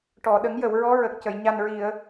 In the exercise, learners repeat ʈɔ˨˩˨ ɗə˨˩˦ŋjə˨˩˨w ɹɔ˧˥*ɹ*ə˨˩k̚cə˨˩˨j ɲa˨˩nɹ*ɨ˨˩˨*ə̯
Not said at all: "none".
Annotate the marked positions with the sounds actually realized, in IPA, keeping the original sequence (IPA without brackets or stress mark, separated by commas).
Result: ɹ, i˨˩˨